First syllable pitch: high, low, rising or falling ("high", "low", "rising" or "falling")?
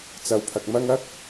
low